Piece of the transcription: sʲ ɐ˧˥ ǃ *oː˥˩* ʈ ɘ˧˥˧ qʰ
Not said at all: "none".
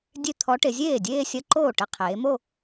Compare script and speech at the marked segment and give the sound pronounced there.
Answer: oː˥˩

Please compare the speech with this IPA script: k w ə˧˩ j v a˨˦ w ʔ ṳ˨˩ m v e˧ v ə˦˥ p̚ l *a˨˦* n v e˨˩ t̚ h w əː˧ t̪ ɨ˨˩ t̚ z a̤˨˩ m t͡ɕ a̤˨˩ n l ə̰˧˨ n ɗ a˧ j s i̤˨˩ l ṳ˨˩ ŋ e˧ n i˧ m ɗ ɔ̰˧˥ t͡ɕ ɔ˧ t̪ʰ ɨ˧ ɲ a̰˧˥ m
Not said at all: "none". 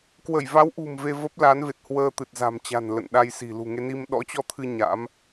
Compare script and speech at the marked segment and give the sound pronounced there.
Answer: a˨˦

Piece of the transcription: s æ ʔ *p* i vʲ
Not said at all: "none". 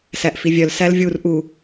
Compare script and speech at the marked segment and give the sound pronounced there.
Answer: f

